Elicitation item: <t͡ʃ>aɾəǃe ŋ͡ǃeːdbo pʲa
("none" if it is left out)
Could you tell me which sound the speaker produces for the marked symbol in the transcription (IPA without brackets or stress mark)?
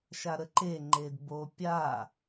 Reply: ʃ